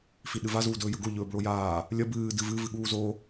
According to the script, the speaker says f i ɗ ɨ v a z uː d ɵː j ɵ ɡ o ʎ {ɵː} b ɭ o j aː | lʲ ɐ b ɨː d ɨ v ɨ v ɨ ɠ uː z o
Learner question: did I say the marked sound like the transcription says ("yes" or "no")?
yes